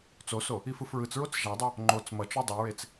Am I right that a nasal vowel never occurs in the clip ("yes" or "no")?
yes